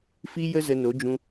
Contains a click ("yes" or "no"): no